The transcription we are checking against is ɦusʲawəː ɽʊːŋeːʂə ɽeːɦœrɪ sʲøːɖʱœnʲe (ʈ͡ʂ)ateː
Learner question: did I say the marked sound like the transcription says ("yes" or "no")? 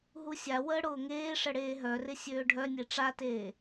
yes